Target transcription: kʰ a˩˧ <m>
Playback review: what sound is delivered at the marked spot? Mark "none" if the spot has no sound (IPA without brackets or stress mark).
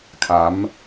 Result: m